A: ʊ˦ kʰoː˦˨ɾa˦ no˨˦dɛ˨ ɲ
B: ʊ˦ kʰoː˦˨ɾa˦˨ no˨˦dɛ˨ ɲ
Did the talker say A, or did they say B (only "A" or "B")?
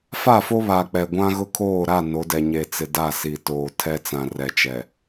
B